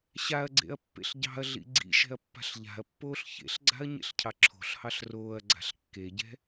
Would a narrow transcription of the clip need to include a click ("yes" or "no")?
yes